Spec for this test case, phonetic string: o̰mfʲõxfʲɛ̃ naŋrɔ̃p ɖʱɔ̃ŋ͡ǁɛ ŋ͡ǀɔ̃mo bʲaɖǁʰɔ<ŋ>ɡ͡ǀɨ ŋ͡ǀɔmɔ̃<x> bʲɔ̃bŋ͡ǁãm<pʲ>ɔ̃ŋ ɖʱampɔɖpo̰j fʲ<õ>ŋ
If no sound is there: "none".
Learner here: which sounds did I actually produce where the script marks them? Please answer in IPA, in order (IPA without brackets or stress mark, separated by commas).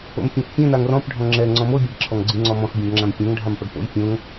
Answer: ŋ, x, pʲ, õ